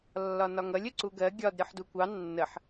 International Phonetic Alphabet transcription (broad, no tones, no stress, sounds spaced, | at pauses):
lː ɒ n ɒ ŋ ʌ lʲ ə ǀ u ɡ ɜ ɡʲ ɒ d ɾʲ ɒ ħ d u kʷ ɑ nː ə ħ